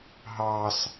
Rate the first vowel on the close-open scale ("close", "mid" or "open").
open